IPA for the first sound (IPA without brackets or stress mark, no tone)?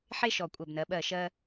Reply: ħ